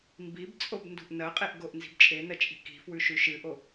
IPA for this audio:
mbibt͡sʼob ndṳʔnɐqʼeʔ ɡoʔnzi̤bt͡ʃʼe nɐt͡ʃʼi̤ki̤ fwʉʃʉʃɨʔo

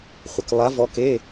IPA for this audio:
χʷə˩klˠa˧˥vɔ˧˥k e˧˥˧

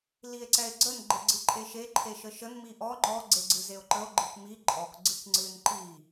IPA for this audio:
lie̯ǀɛe̯ɡ͡ǀən ɡ͡ǃeɡ͡ǀɨǃʼeʃe ǃʰeʃəʃən miʔɔ ŋ͡ǃɔ ɡ͡ǀeɡ͡ǀɨzeo̯ǃəo̯ ɡ͡ǃɨkmi ǃʼɔk ɡ͡ǀɨkŋ͡ǀɨn ǃi

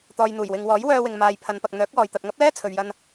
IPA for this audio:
t̪ɔː˨jn̪uː˨˩jwɪ˨ŋwɔː˨˥j wœː˧wɪ˨ŋmaː˨j pʰɐ˨˧npɐ˨k̚n̪œː˨˥k̚wɔː˨j t̪ɐ˨t̚ŋɐ˥p̚lɛː˥ t͡sʰɵ˨ɥjɐ˧n

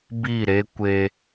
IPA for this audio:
bi˦˨ɾe˦ kʷe˦

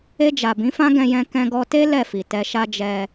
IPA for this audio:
e˧d͡ʒa˨ bĩ˨˦fã˦ ɡɛ̃˧jɛ̃˧ kɛ̃˧ɡɔ˧te˦ lɛ˦˨fi˨ tɛ˧ʃa˦ d͡ʒɛ˧

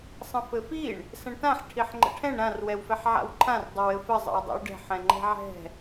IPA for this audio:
sˤə̃fɘfiɳ | sə̃ɳtãħ ʈʰiħŋ͡ǃə̰ʈʰɛ̃ɳ ɾãr wɛwfɛħʕa̰wǃʰãr dˤəwɘfə zˤə̰wdˤɛ̰wɖɛ̤ħ ɛ̃ŋ͡ǃɛ̤ʕɛ̤

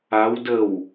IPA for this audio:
aw dəw

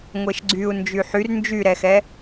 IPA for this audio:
ŋʷeʃɡ͡ǀyu̯ nd͡ʒyħyr nd͡ʒyɾɛxɛ

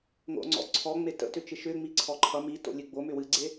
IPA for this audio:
ŋo̰ŋ͡ǀɔ̰ ǀʰɔŋ͡me tə̰tʏt͡ʃɨ ʃʏŋ͡mi ǀʰɔǃʰʌ mi to̰lʲɨɡ͡bo mʏwɨɡ͡ǀe

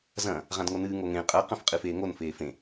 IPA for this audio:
zɐ̃ | ʁãdŋonɨː ŋoŋẽ qʼɐ qɐ̃fqʼɨfeːŋon feːfẽ

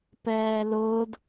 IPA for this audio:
pɛːlʊːd

